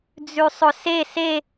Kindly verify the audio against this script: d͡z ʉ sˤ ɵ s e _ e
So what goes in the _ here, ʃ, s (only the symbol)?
s